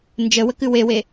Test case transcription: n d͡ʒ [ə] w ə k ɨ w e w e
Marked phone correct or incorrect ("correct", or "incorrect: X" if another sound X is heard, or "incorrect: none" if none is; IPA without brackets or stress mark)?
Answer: correct